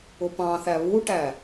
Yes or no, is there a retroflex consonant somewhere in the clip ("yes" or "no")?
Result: yes